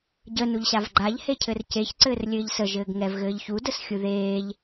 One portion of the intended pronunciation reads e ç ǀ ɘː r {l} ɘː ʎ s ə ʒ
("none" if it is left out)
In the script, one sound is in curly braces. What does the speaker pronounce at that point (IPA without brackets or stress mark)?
lʲ